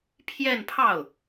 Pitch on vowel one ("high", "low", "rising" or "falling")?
falling